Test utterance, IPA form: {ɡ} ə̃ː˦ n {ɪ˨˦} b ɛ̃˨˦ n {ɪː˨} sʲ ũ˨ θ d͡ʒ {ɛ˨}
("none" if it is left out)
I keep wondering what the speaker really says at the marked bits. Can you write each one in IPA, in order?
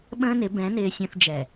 ɓ, ɪ˨˦, ɪː˨, ɛ˨

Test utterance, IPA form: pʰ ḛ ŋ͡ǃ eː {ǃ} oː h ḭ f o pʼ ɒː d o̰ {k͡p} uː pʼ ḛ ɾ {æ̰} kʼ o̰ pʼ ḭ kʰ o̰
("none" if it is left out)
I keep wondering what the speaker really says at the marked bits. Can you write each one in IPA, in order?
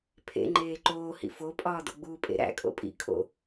ǃ, ɡ͡b, æ̰

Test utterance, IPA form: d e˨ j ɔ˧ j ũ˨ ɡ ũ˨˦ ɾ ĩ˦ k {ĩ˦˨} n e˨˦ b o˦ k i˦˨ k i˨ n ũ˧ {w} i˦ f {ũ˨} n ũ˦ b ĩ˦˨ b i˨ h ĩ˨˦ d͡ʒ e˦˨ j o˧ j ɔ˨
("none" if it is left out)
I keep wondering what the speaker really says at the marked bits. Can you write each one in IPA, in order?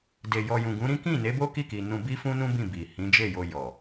ĩ˦˨, b, ũ˦

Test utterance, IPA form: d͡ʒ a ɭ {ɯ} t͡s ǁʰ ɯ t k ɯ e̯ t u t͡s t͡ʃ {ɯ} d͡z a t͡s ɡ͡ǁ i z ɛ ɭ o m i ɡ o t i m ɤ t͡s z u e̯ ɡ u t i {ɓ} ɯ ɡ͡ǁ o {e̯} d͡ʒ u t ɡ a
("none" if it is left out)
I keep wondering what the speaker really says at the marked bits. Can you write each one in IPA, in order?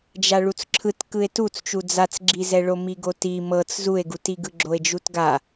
u, u, ɡ, e̯

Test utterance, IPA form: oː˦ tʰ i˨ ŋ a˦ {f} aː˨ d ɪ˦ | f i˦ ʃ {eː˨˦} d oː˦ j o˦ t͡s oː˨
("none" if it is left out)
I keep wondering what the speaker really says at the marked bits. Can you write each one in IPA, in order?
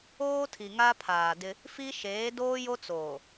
pʰ, eː˨˦

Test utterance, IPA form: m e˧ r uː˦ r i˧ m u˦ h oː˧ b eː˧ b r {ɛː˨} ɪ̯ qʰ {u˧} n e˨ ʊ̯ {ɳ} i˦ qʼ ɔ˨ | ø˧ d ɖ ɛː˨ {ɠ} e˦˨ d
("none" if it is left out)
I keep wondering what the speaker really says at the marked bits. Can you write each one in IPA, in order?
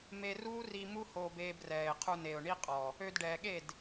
ɛː˨, u˧, ɳ, ɠ

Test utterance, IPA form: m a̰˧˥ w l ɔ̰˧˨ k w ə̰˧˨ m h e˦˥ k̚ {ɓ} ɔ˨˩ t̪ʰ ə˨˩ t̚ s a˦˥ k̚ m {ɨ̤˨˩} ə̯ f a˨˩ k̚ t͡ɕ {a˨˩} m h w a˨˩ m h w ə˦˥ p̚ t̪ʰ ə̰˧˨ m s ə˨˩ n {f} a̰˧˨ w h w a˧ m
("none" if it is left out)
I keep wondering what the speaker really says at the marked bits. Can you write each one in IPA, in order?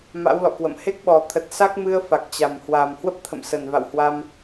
ɓ, ɨ˧, a˨˩, v

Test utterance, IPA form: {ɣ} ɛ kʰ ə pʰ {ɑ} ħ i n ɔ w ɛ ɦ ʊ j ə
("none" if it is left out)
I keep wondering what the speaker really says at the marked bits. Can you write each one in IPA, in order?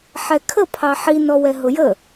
ħ, ɑ

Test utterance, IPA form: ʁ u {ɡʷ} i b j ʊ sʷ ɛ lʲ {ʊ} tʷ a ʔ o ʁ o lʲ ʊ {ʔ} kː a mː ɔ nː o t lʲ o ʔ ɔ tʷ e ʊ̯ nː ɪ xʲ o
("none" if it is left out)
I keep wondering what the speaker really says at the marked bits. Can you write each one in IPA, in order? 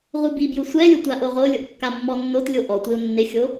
b, ʊ, ʔ

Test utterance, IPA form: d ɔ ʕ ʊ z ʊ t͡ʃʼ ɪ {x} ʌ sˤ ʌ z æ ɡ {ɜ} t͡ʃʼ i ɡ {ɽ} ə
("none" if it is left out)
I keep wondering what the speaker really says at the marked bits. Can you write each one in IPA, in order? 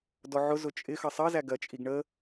x, ɜ, ɳ

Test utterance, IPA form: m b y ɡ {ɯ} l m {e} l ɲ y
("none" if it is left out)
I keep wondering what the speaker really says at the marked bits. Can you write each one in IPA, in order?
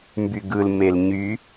ɯ, e

